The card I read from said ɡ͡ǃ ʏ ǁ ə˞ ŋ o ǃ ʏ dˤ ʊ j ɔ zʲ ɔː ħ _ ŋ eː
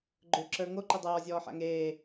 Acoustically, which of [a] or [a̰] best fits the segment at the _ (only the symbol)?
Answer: a̰